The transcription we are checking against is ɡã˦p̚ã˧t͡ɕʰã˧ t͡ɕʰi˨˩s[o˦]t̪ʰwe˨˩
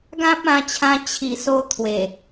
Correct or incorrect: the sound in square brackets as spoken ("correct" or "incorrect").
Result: correct